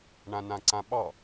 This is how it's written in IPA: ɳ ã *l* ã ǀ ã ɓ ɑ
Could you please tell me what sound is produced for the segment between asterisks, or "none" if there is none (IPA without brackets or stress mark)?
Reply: n